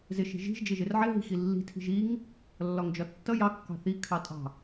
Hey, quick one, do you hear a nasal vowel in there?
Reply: no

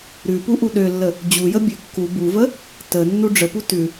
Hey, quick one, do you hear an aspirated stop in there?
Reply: no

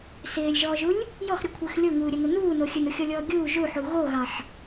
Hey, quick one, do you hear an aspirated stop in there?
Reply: yes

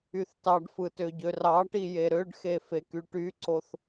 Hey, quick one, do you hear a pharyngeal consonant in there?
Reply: no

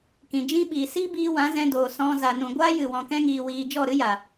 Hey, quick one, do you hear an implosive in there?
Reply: yes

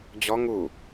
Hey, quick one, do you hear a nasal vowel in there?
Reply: no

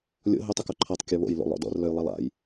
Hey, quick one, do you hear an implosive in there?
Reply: no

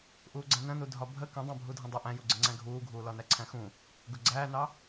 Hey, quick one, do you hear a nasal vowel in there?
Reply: yes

